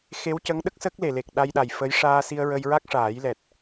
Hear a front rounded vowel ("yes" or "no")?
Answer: no